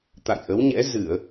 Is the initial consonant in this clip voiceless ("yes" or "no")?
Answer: yes